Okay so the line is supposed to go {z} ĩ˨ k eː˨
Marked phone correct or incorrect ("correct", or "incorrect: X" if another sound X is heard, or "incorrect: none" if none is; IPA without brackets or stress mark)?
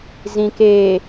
correct